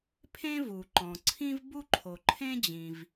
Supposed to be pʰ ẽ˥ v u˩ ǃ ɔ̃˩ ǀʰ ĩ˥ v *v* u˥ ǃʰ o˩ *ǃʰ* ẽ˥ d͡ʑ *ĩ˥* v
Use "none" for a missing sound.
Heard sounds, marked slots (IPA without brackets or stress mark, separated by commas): b, ǃʰ, ĩ˩